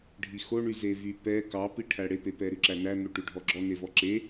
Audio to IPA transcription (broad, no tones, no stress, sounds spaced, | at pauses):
ɖʱ i x o ɳ y z e v y p ɛ k ɑ p i ʈʰ æ ɽ e p e p ɛ ɾ ʉ ǁ æ n æ n̪ o ʈ ʉ ɖʱ ɔ ɡ͡ǁ ɔ n e v ɔ ǁ e